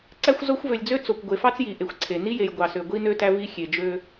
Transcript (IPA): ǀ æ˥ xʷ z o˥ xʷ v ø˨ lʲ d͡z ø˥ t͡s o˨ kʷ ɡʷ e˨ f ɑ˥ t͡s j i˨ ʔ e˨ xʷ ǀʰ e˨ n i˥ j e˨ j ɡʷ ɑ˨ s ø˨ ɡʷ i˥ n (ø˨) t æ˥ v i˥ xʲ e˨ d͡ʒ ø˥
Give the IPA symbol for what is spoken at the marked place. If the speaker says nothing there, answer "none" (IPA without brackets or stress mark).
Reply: ø˥